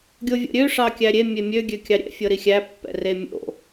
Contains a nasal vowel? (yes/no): no